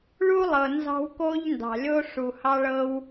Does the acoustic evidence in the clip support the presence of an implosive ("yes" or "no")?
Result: no